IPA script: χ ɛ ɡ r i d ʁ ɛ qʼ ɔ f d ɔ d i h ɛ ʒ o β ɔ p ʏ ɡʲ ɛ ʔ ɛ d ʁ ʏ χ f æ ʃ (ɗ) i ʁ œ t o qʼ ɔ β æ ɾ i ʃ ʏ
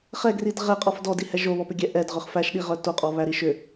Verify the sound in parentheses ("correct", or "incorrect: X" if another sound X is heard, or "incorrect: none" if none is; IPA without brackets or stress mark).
correct